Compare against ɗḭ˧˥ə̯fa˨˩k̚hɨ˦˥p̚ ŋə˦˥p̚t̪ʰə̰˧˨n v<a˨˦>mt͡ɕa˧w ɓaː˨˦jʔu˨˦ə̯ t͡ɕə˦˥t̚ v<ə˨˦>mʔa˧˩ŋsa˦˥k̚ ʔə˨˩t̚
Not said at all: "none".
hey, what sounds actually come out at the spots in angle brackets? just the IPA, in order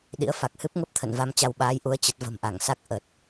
a˧, ə̤˨˩

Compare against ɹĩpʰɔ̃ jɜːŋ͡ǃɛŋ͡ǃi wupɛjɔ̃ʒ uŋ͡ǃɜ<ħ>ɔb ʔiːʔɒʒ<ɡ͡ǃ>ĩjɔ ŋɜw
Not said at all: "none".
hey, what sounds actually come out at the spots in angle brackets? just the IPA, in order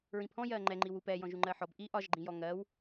ħ, ɡ͡ǃ

